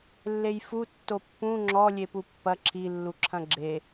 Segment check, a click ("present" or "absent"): present